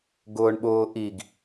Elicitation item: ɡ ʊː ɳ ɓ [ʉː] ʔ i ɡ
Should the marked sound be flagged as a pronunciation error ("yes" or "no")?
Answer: yes